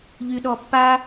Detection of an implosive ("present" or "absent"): present